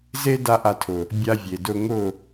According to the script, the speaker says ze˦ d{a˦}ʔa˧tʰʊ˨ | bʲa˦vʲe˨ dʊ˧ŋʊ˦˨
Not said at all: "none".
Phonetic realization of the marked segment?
a˦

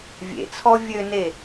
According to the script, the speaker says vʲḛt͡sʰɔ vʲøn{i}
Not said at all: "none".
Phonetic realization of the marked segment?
e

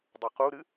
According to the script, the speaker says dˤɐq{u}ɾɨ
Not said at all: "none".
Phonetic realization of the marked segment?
u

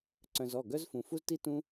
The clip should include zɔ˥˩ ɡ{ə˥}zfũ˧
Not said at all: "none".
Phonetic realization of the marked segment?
œ˥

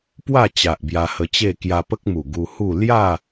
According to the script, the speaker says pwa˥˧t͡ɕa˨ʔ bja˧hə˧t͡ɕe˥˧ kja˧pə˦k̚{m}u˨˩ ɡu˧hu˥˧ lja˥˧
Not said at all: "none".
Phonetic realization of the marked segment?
m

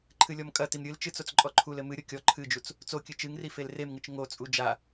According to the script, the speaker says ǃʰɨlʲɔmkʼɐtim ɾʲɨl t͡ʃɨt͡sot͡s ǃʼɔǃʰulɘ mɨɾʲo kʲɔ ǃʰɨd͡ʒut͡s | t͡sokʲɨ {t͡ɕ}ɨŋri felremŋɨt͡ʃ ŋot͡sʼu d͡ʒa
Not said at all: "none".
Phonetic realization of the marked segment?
t͡ʃ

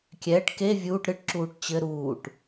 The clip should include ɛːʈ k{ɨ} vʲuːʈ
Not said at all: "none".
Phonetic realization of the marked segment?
e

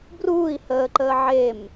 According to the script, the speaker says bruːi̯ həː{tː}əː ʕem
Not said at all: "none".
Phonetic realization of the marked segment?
ǃ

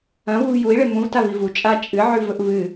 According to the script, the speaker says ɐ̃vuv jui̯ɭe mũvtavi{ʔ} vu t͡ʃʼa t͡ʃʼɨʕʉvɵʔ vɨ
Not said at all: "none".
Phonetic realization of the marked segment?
none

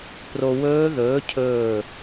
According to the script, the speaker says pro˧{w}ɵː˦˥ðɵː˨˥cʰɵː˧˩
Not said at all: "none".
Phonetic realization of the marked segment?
w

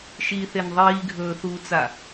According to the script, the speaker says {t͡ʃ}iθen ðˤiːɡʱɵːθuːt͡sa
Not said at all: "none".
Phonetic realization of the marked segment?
ʃ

